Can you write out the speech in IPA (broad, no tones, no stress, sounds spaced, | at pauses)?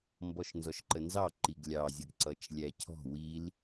m b ɔ ʃ n z ɔ ʃ ǃ ə n z ɑ ǃ i ɡ lʲ ɑ zʲ ə ɡ ǀ ʌ t͡ʃ lʲ æ cʰ ɔ̤ w i l